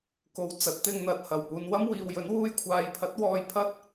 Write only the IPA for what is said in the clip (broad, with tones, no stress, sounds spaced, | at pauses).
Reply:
k o˨ w t͡s ɐ˨˥ t̚ t̪ ɪ˧ ŋ n̪ ɐ˨ t̚ h ɐ˨˩ w p uː˨ n w ɐ˥ m w iː˨ w j ɵ˨˥ n w uː˧ j kʷʰ aː˨ j pʰ ɐ˨˥ t̚ w ɔː˧ j pʰ ɐ˥ t̚